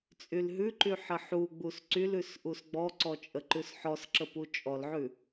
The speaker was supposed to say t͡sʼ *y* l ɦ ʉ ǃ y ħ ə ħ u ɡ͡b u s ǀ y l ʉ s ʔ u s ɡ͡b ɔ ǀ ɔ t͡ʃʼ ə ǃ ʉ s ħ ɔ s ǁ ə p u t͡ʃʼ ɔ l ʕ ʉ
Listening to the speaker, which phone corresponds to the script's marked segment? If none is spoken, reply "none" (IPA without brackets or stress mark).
y